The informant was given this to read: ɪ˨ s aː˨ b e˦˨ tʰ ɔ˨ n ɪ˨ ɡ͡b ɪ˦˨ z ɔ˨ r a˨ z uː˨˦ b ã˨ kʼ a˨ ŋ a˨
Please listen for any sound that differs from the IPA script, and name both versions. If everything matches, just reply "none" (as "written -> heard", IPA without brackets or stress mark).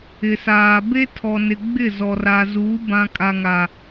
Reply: e˦˨ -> e˦